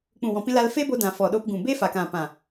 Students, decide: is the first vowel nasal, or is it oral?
nasal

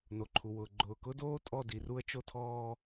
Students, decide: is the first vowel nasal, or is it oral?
oral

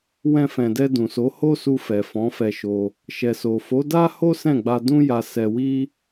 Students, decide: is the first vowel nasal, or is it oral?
nasal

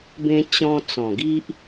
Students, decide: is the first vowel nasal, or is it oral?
nasal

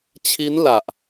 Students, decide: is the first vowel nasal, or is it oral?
oral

